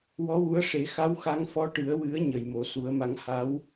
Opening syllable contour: rising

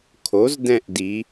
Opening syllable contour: rising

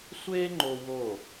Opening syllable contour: high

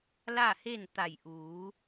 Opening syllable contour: falling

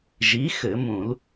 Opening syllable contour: rising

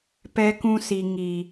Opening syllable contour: high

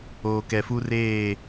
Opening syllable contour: low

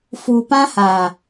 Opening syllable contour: low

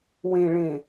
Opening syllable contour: low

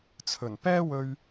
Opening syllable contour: low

